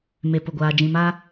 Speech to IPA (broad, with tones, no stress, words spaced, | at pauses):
me˨pʊ˨ ɡʷaː˨d͡ʒĩ˨ma˦